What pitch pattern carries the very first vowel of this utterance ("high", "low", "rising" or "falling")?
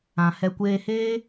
low